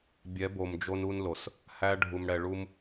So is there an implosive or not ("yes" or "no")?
no